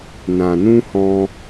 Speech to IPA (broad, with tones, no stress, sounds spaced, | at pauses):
n ã˨ n ũ˧ h ɔ̃˧